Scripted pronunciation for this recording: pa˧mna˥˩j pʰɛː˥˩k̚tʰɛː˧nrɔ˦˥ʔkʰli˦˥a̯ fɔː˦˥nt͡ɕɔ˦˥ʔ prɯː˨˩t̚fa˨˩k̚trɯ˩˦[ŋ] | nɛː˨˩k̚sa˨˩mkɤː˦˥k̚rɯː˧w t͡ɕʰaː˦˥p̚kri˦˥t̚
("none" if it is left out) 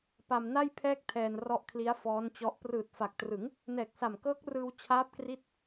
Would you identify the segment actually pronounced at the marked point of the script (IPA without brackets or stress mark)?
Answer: ŋ